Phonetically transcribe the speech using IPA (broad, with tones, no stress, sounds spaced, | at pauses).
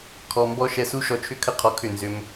kʰ ɔ˨ m b ɔ˧ ʃ ɛ˧ s u˦ ʃ ɔ˧ t͡ʃʰ ʏ˦ kʰ ə˦ qʰ ɔ˧ kʰ ʏ˦˨ n z ʏ˧ m